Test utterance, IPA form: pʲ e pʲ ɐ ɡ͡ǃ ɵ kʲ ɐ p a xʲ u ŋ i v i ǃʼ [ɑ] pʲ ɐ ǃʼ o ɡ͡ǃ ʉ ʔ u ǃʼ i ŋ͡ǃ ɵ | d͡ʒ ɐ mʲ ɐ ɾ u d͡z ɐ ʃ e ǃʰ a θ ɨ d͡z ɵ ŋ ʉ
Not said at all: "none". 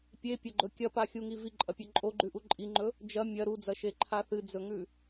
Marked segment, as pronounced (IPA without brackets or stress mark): ɐ